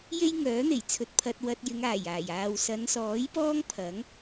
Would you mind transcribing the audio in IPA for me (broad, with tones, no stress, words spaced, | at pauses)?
je˥jŋœː˨˥ n̪e˨˩jt͡sʰɵ˧t̚pʰɐ˧t̚ wɐ˧t̚ jɪ˨˧ŋaː˨˩jaː˨˩j aː˨wsɐ˨˧nsɔː˨˥jpɔː˥ŋ pʰɐ˨˥ŋ